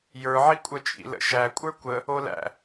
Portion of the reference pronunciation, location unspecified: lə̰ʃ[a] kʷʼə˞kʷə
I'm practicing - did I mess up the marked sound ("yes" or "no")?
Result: yes